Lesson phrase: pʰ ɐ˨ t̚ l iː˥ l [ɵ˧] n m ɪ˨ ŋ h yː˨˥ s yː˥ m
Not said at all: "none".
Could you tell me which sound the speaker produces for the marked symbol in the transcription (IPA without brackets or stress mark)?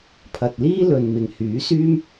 ɵ˨